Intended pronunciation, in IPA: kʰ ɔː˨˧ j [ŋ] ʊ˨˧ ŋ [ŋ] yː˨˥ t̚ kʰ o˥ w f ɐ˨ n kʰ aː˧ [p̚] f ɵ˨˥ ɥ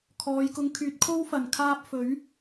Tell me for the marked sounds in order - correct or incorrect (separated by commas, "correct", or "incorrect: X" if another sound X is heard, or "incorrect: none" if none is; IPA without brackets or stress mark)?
incorrect: k, incorrect: kʰ, correct